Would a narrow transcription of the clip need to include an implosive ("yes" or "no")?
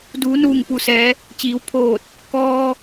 no